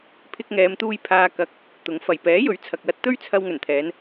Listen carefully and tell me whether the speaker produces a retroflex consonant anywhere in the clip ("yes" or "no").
no